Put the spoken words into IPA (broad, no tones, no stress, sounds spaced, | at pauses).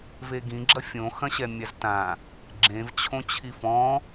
v e ɡ ĩ ɡ͡ǁ ɐ fʲ õ x ɐ̃ ɕ ɛ mʲ a z t ã | ɡ͡ǁ ẽ v t͡ɕʰ õ t͡ɕʰ i f ɔ̃